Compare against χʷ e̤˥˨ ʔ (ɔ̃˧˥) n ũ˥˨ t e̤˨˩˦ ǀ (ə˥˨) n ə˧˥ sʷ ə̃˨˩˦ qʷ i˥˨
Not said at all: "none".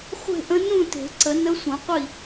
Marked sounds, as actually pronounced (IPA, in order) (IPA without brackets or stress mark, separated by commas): ə̃˧˥, ə˨˩˦